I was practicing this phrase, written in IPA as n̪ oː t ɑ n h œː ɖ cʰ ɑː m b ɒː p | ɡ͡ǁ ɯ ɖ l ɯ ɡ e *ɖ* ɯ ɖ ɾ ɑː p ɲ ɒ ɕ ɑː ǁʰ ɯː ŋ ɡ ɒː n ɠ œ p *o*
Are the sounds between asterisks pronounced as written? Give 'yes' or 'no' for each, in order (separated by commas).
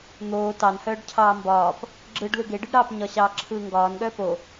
yes, yes